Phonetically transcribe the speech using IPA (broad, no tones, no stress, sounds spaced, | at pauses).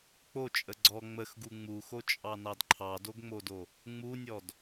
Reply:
k͡p o t͡ʃʼ ə ɡ͡ǀ ɔ ŋ͡m ə x ɡ u ŋ͡m u x o t͡ʃʼ ɑ n ɑ d ǃʰ ɑ d o ɡ ŋ͡m o d o | ŋ͡m u nʲ ɔ d